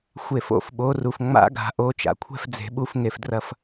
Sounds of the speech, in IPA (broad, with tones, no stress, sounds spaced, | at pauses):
xʷ e˧˩ f o̰˥˨ f ɓ o˨˦ r u˩ f ŋ͡m a̰˦˥ ɡ a̤˨˩˦ ʔ o˨˦ t͡ʃ a̰˩ kʷʰ ɛ̤˥˨ f d͡z e̤˨˩˦ ɓ u˨˦ f ŋ e˩ f d r ɐ˧˩ f